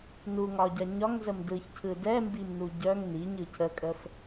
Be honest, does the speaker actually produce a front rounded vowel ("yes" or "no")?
yes